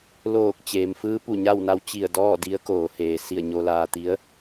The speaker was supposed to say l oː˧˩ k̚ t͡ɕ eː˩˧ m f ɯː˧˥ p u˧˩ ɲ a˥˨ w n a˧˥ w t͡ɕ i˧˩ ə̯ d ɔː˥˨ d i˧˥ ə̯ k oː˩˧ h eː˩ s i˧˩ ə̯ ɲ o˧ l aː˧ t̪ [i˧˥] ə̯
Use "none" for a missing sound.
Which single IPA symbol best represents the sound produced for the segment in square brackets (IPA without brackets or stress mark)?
i˧˥